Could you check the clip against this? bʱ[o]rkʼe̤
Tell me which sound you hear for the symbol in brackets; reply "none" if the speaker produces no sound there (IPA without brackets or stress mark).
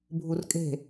u